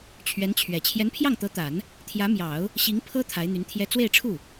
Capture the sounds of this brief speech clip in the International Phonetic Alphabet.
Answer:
t͡ɕʰ ɥ ɛ˧˥ n t͡ɕʰ ɥ ɛ˨˩ t͡ɕʰ j ɛ˧˥ n pʰ j ɑ˥˩ ŋ t̪ ɤ˧˥ t̪ a˨˩˦ n | t̪ʰ j ä˧˥ m j ɑ˨˩˦ ʊ̯ | ɕ i˧˥ ŋ pʰ ɤ˥ t̪ʰ a˧˥ ɪ̯ n̪ y˧˥ n t̪ʰ j ɛ˥ t͡s w e˥˧ ɪ̯ ʈ͡ʂʰ u˥˩

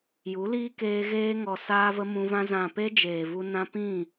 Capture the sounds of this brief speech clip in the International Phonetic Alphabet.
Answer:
j u˨˦ l iː˦ k eː˧ ɣ eː˧ ŋ ɔ˨ s aː˦ v ə˦ m ũ˧ v ã˦ z ã˨ p e˧ d͡ʒ eː˨ v u˧ n ã˧ p ĩ˦˨

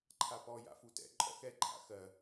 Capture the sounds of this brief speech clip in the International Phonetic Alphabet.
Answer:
ǃʰ a p ɔ j a̰ f u t ɛ̰ ǃʼ ɔ̰ x ɛ ǃʼ a̰ x ɜ

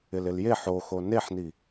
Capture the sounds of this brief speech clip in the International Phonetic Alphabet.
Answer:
ɪ l ɪ l j e ħ o x o n e ħ n i

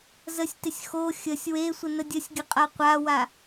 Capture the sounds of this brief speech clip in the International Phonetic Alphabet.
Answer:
z ə sʲ t ɪ sʲ x o xʲ ə sʲ w e sʷ ə n ə dʲ ə sʲ ɡʲ ə qʼ a qʷ a w a

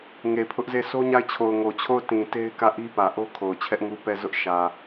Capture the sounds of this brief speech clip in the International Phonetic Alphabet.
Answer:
ŋ e˨ pʰ ʊ˦ ʔ z e˦˨ s o˦ ɲ a˦˨ ɪ̯ t͡ɕʰ o˨ ʊ̯ ŋ o˨ t͡ɕʰ o˦˨ ʊ̯ t ĩ˨ t e˦ ɪ̯ k ä˦˨ ʔ i˦ p ä˨ ʔ o˦ kʰ o˨ ʊ̯ t͡ɕʰ ɛ˦ ʔ ŋ u˦ p ɛ˦˨ z ʊ˦ ʔ ʃ ä˨

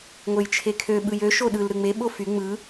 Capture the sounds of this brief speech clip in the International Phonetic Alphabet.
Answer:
ŋʷ e j t͡ʃʰ e kʰ ø ɓ ɯ j ø ʃ o ɗ ɯ l ɾ ɯ ŋ͡m e ɓ o f y ŋ͡m ɯ

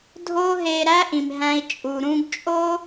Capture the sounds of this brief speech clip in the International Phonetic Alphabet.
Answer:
dʱ oː˥ ɦ eː˧ ɾ æ˥ ʔ ĩ˩ m ɦ æ̃˧ i̯ t͡ʃʼ u˩ ɾ ũ˧ ɡ t͡ʃʼ o˥

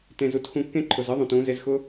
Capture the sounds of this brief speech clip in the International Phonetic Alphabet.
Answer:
t ẽ˨ z u˧ t x ũ˧ kː ẽ˦ ǃʰ ʊ˨ z ɯ˦ ðˤ ũ˨ t ũ˨˦ z e˧ z x ʊ˦

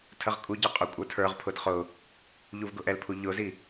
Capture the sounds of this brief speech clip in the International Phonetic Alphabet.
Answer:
tʰ ə ʁ kʼ u ɟ ɑ qʼ ʊ kʷʼ ə˞ tʰ ə˞ ʁ pʰ ʊ d χ ʊ | ʎ u v ɡ ʊ ʔ ɛ l pʰ u ʎ ʊ z i

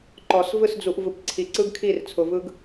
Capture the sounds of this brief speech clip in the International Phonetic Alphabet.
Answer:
ǃ ɔ˨ s v ɯ˦˨ s d͡z u˨ ʔ v ɯ˨ p ǀʰ i˨ ǀ ɯ˦ ɡ kʰ i˦˨ r t͡sʰ ʊ˨ v ɯ˦ ɡ

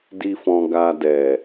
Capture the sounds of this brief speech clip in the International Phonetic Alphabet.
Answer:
d i˦ f ɔ̃˧ ɡ a˧ d ɛ˨

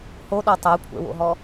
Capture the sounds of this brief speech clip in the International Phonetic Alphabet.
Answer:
h o ɗ ɔ tˤ a kʷʰ ɛ̰ w o̰ ɦ ɔ

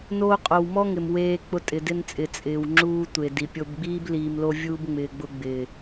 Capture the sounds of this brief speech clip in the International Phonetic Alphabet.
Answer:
n oː˦ qʼ o˧ w m ɔ˦ ŋ ɪ˨ m w eː˧ k͡p ʊ˧ tʼ ɪ˨ d ɪ˧ n t͡sʼ ɪ˨ t͡sʼ ɪː˨ w ŋ͡ǁ uː˧ tʷ e˨ d i˨ pʲ o˧ b ɡ͡b iː˦ b l iː˧ m l o˦ vʲ uː˧ b ŋ͡m ɪː˧ ɡ͡b ʊ˧ ɡ͡b ɪː˨

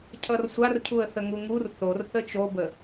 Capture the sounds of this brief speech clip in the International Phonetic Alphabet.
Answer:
cʰ ʌ r sʷ a r cʰ u ə̯ θ ə ŋ u ŋ u r θ o r θ ə t͡ʃ o b ə

